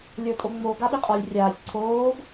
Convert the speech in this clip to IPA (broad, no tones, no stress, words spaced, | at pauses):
lʲə˞tʼoŋ͡mo ɡaɓiqʼɒlʲ rʲaːsʲ ǀʰoːɡ